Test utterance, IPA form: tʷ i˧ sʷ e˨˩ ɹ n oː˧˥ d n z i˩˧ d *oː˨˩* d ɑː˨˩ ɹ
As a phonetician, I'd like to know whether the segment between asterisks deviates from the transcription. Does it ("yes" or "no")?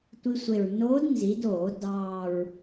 yes